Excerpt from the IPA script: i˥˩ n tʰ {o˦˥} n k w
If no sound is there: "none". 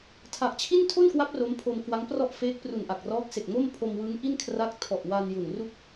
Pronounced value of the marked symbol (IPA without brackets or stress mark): o˥˩